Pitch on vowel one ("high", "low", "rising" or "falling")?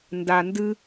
low